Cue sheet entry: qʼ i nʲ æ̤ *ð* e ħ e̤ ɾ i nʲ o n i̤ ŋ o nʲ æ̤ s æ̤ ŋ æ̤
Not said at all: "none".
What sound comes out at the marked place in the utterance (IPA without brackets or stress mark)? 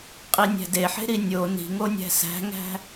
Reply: d